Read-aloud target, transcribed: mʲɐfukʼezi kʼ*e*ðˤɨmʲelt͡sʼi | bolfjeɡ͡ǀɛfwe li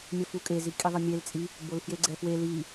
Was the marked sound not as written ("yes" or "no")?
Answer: yes